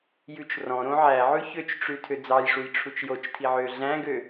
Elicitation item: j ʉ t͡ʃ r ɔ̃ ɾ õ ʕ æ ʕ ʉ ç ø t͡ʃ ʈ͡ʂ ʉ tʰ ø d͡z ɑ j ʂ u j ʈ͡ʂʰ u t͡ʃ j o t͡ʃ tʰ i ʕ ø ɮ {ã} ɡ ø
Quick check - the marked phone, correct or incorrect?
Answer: incorrect